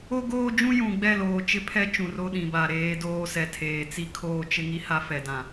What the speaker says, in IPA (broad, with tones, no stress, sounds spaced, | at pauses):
o˦ ɡ oː˦ d͡ʒ ũ˦ j ũ˨ ɡ͡b ɛ˦˨ l oː˨ t͡ʃ ɪ˦ pʰ ɛ˦ t͡ʃ ũ˨ r o˦ ɗ ĩ˨ b a˨ ɾ eː˨˦ d oː˦ s ɛ˨ tʰ eː˨ t͡s i˦ kʰ oː˦ t͡ʃ ɪ˦ ŋ i˦ h a˦ f ɛ˨ d ã˨